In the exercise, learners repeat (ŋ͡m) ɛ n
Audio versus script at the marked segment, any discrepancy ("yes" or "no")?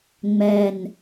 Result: no